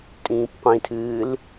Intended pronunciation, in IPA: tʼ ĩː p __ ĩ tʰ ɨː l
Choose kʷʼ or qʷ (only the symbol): qʷ